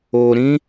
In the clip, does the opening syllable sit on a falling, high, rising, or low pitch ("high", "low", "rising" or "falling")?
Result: low